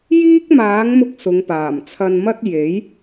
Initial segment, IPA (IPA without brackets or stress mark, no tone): j